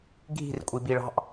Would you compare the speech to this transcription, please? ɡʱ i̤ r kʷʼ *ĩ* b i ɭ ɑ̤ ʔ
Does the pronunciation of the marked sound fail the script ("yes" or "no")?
yes